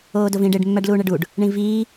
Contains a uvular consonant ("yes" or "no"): no